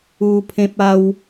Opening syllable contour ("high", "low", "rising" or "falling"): high